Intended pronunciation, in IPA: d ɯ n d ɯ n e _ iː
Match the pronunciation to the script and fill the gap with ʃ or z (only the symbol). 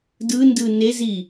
z